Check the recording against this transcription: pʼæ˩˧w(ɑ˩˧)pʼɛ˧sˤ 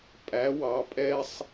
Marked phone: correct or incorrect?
correct